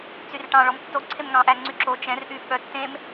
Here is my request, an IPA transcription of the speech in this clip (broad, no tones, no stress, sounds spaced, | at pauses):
t͡s y r ʈ ɑ̃ ɭ ɔ m tː o ǀʰ e m ŋ ɑ̃ ʔ æ ŋ͡ǀ y ǁ o t͡ʃ ɛ̃ r ʔ y ɓ œ tː ẽ m